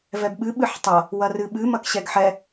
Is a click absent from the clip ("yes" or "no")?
yes